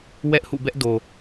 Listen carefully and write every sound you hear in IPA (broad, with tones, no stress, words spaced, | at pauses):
wɛ˦ʔhṵ˦˨bɛ˦ʔ do˨